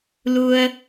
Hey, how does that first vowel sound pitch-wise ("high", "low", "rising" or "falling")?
low